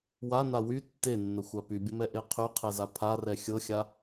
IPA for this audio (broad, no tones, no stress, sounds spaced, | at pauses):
w a n a w y tː e nː ə xʷ a p y bʲ ə m ɛ ʔ e qʰ y qʰ ɛ z a pʰ a r ɛ xʲ ɤ xʲ a